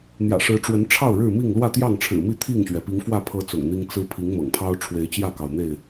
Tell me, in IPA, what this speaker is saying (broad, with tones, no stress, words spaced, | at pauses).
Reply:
n̪jä̰˨˩ʂɻ̩˨˦ʈ͡ʂwə˨˦n ʈ͡ʂʰɑ˥˨ʊ̯ ɻɻ̩˥˨mi˥˨ŋ lwä˥˨t̪jɑ˥˨ŋʈ͡ʂʰɻ̩˨˩mi˥˨ t̪ʰi˥˨ŋɕɥɛ˩ pi˨˦ŋfwä˥˨ pʰɤ˨˦ t͡sʊ̰˨˩ŋn̪i˦ŋ t͡sɹ̩˦ pʰi˨˦ŋ mɤ̰˨˩ŋpʰɑ˦ʊ̯ ʈ͡ʂʰwe˨˦ɪ̯t͡ɕjä˥˨kɑ˩ʊ̯n̪e˥˨ɪ̯